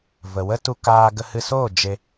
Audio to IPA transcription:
v ə˨ w ə˦ t u˧ k aː˧ ɡ ə˧ h ɨ˧ s oː˦˨ d͡ʒ e˧

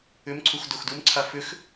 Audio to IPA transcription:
ʏ m ǀʰ u x d o x d u m ǀʰ a f ʏ x

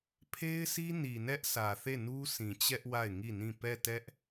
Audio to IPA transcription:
pʰ e˦ ɪ̯ sʰ i˦ n i˨ n ɛ˦ ʔ s ä˨ θ e˦˨ n u˦ s ĩ˨ t͡ɕ ɛ˦ ʔ w a˦˨ ɪ̯ ŋ i˦˨ n ĩ˦˨ p ɛ˦˨ t ɛ˦ ʔ

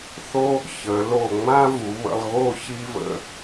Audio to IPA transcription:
θ o˥ | ç ə˩˧ l o˧˩ ŋ͡m ã˥ v u˩˧ β ə̰˧ lˠ ɣ o˥˧ ç i˥ v ə̰˥˧

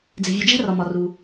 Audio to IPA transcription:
d͡z e̤˩ vʲ u˩ d͡ʒ æ̤˥ r ɒ˩ m ɒ˩ r u˩

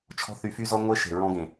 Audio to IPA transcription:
t͡ʃʰ ɔ̤˦ θ y˧ f y˦ z ɔ˦ ŋʷ e˦ ʃ e̤˨ ɹ ɔ̃˧ ɡ ẽ˨

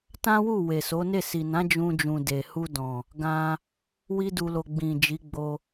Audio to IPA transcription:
t ã˦ w u˦˨ w e˨ s o˨˦ n e˦˨ s i˨ n ã˨˦ d͡ʒ ũ˧ d͡ʒ ũ˨ d e˨ h u˧ d ɔ̃˨ | ɡ ã˧ | w i˦ d u˧ l o˧ ɡ͡b ĩ˨ d͡ʒ i˨˦ ɡ͡b o˧

